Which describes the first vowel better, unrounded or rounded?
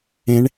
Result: unrounded